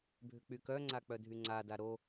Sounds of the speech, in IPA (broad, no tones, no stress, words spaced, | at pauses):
bʱʏk͡pykœŋ͡ǀa k͡pœdʱyŋ͡ǀada ɾo